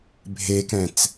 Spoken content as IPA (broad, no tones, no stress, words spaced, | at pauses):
bʱekɛ̃t͡s